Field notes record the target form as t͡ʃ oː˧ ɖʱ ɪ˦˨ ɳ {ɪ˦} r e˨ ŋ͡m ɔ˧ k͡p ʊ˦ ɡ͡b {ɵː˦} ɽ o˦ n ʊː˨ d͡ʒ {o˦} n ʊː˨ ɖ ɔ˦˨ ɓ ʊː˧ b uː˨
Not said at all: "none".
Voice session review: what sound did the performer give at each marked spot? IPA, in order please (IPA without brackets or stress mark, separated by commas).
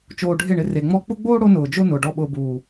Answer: ɪ˧, oː˦, o˦